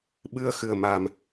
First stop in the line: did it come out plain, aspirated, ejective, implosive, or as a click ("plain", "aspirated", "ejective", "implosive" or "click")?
implosive